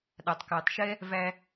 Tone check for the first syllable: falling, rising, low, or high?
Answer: low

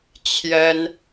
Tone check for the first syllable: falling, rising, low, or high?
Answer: high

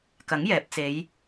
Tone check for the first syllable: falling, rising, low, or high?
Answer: rising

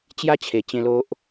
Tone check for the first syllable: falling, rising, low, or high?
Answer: high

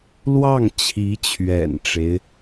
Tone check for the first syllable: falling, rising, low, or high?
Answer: falling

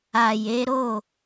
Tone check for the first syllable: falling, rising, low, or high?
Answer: low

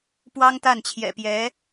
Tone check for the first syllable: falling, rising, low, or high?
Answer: high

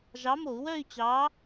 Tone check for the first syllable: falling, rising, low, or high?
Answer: rising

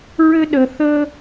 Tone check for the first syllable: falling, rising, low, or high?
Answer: high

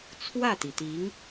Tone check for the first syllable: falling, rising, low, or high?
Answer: falling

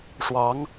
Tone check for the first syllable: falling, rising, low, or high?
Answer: rising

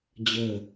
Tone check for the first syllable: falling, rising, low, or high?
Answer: falling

